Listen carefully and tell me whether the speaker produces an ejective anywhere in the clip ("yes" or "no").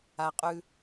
yes